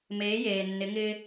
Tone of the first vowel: rising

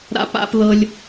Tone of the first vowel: high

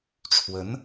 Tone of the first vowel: rising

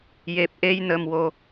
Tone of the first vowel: low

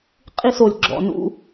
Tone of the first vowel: falling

